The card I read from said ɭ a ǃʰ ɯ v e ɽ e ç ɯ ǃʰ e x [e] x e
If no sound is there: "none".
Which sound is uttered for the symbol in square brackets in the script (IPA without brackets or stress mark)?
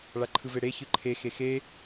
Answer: e